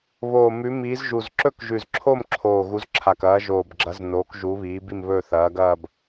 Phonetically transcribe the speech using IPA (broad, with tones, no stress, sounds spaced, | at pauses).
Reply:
β oː˨˩ m ʉ˨˦ m iː˨˦ z ʒ u˨˩ z ǁ ɵ˥˧ k ʒ ʉ˨˩ z ǁʰ o˥˧ m ǁʰ oː˨˩ ɣ u˨˦ z ǁʰ a˨˩ k ɐː˨˦ ʒ oː˨˩ b ɡ͡ǁ ɐ˨˦ z n oː˨˦ k ʒ u˨˦ β iː˨˦ b i˥˧ m β ɵː˥˧ θ ɐː˨˦ ɡ ɐː˥˧ b